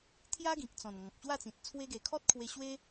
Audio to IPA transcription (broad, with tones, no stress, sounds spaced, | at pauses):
t̪ʰ j a˦ ɡ ĩ˨ k̚ t͡s ɔ̃˨˩ n ŋ ɔ̃˨ k̚ ɕ w a˥˧ t͡s ĩ˨ t̚ t͡sʰ w e˧ ɡ e˨˩ kʰ ɔ˦ t̚ kʰ w e˧ ɕ w e˦